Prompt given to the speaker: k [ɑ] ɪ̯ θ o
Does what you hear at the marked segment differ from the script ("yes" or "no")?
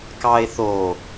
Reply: no